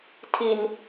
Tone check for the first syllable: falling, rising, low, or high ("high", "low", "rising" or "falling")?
low